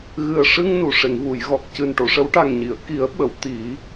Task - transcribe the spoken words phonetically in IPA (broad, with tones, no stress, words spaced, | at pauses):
ɣɨ˨˩ə̯ʂɨ˧ŋ nu˨˩˨ʂe˨˩˨ŋvu˨˩˨jɣɔ˨˩k̚ cɨ˨˩nʈo˨˩˨ʂə˨˩˦w ʈa˨˩ŋɲi˨˩˨ə̯ ki˨˩˦ə̯ɓə˨˩˨w t̪i˨˩˦